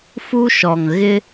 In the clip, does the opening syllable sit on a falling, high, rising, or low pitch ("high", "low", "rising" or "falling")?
high